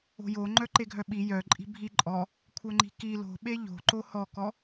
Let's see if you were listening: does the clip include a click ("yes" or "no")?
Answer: yes